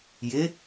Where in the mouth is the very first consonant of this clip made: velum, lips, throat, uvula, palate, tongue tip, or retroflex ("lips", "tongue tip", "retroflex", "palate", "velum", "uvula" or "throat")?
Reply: palate